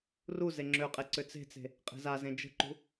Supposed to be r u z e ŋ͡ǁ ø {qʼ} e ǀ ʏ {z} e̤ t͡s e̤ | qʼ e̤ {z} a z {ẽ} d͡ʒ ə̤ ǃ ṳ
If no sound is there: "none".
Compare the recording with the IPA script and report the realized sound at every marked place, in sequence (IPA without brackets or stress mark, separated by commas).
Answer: qʼ, t͡s, z, ẽ